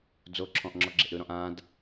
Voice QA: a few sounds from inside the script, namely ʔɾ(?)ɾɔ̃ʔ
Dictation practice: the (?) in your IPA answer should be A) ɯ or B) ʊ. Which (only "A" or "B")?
A